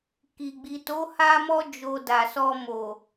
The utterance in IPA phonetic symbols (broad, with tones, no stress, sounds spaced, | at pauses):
k i˨ ɡ͡b i˨ t o˨˦ h a˧ m ɔ˧ d͡ʒ o˨ d a˨ s ɔ˧ m o˨